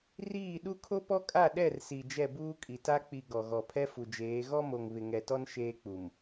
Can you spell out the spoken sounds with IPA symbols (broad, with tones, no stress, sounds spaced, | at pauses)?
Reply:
r iː˦˨ ɗ u˦ kʰ o˦ p ɔ˦ kʼ a˦˨ ɗ ɛ˦˨ r s i˨ d͡ʒ ɛ˦˨ b uː˦ kʼ i˨ t a˦ k͡p i˨ ɡ ɔ˨ ɣ ɔ˨ pʰ ɛ˦ f u˨ d͡ʒ eː˨˦ ɣ ɔ˦ m o˨ ŋ β ɪ˨ ŋ ɛ˨ t ɔ˦ n ʃ eː˦ k͡p u˨ m